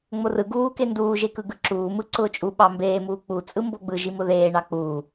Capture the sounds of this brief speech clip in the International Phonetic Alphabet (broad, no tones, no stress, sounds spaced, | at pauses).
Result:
ŋ͡m o r ɯ ɡ uː k e n d uː ʒ e k ɯ ɡ ɯ ǁ uː m ɯ ǀ ʊː t͡ʃʼ u ɓ ɑ m b eː m uː k͡p u t͡sʼ ɯ m b o ɡ͡b ɯ ʒ i m ʊ ð eː ɳ ɑ k͡p uː